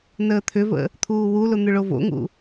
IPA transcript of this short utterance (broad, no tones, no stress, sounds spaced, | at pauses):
n əː t̪ʰ ʏ v ə̰ | t̪ʰ uː w u l ʊ n̪ ʏ ɭ o v o̰ ŋ ṵ